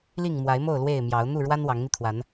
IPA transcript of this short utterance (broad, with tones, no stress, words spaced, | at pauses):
li˥˨ŋmwa˨˦ɪ̯mo˥˨ʊ̯ lwe˥˨ɪ̯ mjɑ˨˦ʊ̯ n̪u˥˨ɻwa˦n wɑ˨˦ŋn̪i˧t̪ʰwa˨˦n